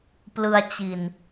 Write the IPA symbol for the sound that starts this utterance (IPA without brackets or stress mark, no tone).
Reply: p